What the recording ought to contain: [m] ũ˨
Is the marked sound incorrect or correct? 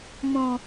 correct